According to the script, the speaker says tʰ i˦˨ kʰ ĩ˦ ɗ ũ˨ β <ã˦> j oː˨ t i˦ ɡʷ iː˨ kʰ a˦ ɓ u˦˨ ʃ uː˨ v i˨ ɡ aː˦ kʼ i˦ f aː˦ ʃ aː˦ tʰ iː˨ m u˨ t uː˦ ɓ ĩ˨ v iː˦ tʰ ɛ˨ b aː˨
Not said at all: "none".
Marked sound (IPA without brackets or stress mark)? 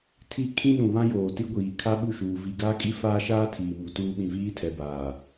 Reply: ã˦